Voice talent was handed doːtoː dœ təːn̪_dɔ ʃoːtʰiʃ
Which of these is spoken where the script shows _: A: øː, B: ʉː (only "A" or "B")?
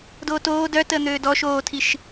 A